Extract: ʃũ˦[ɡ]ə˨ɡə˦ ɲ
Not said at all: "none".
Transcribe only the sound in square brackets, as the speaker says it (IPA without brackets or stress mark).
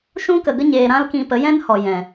k